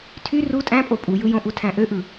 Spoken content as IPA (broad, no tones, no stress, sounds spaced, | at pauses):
tʰ y r u tʼ æ̃ pʼ o pʼ u j ɯ j õ ʔ u tʰ æ̃ ʔ ø ʔ ɯ